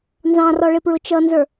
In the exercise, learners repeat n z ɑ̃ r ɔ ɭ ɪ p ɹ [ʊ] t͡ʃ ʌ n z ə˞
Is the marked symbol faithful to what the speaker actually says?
yes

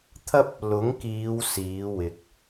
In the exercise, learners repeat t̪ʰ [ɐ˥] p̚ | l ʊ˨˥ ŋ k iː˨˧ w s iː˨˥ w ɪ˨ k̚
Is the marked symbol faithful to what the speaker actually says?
yes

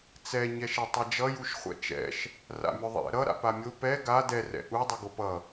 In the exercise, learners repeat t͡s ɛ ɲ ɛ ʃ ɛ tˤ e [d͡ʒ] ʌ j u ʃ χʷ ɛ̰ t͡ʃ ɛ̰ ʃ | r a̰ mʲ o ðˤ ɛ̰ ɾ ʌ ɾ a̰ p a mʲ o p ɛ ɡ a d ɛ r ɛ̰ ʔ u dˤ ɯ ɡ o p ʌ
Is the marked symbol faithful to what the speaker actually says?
yes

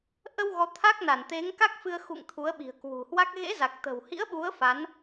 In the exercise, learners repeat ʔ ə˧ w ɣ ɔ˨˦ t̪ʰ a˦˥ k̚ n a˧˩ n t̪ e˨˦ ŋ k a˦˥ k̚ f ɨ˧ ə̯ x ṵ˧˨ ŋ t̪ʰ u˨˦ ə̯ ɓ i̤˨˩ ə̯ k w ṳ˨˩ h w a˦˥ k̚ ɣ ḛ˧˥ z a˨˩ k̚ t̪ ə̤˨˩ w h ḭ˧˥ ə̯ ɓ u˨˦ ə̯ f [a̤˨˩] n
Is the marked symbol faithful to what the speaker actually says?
no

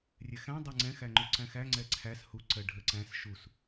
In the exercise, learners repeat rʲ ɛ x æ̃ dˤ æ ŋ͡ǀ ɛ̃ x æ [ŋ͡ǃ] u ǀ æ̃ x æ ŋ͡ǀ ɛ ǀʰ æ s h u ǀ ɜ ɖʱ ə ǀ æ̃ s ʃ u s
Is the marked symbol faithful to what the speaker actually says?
yes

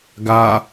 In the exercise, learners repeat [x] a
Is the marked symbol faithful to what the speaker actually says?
no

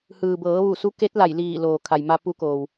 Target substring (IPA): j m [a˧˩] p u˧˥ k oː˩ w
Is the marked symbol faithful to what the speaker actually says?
no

